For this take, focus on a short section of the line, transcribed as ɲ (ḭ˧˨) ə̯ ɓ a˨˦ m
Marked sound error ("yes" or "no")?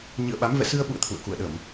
yes